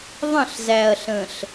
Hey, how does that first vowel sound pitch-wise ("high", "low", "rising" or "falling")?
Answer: falling